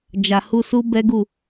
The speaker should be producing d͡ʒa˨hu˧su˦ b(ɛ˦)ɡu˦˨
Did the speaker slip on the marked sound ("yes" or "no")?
no